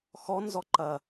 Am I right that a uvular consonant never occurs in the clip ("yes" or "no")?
yes